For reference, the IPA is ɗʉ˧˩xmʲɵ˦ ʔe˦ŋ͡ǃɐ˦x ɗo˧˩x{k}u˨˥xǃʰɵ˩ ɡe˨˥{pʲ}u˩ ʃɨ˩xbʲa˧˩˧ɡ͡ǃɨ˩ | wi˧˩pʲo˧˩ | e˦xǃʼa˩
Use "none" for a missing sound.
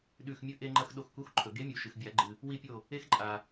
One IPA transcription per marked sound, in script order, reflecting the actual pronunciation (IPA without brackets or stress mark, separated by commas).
k, mʲ